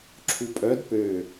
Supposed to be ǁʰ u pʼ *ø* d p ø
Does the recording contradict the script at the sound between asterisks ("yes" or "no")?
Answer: yes